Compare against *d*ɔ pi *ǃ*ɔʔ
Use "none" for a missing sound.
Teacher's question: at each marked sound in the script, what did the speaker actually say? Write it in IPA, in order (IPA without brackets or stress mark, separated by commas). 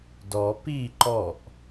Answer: d, ǃ